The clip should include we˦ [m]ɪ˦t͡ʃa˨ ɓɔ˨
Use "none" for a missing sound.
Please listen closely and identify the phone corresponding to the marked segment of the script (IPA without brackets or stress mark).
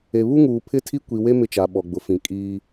m